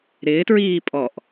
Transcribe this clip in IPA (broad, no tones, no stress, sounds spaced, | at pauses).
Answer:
ɾ ɪː t ɹ iː pʼ ɔ ʔ